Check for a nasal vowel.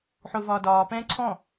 present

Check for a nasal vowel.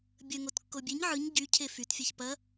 absent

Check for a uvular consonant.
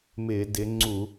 absent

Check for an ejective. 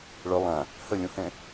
absent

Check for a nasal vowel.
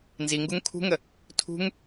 absent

